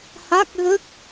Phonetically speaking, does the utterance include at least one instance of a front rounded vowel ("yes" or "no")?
no